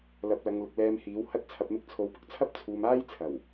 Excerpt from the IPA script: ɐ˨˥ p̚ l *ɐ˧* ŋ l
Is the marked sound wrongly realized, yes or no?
yes